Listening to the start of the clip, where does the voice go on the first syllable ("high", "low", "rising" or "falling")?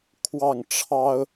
falling